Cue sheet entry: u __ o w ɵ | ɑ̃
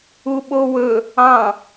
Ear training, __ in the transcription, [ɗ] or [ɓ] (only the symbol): ɓ